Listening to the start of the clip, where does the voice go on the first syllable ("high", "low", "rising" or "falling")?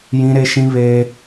high